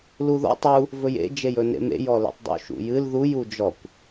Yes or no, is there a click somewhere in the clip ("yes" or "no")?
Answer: no